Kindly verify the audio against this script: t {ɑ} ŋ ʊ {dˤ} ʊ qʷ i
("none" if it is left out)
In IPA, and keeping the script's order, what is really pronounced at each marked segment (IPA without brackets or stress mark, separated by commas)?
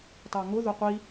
ɑ, ð